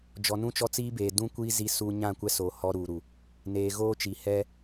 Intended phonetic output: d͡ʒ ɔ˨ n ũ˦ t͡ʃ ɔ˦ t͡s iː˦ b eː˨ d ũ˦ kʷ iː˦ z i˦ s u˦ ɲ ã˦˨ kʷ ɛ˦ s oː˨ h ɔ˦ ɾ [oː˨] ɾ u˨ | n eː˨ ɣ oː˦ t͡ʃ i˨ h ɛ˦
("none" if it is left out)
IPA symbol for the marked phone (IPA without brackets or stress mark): uː˨